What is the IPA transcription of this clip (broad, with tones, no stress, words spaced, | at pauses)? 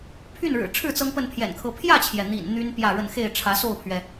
pʰy˥˨nɻɻ̩˨˩ʈ͡ʂʰɻ̩˥˨ t͡sɤ˦ŋpə˥˨npʰjɛ̰˨˩nkʰɤ˨˦ pʰjä˥˨t͡ɕʰjɛ˩ n̪ḭ˨˩n n̪y˦n pjä˥˨ɻə˥˨n xe˥˨ɪ̯ ʈ͡ʂʰä˨˦so˥˨ʊ̯pʰɥɛ˩